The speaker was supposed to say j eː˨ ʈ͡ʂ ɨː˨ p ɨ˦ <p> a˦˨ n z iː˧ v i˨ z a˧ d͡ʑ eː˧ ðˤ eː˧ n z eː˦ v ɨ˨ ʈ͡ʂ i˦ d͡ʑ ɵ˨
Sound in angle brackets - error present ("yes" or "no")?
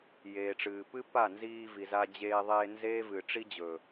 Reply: no